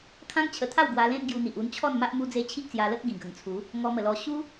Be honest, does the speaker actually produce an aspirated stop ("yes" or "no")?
yes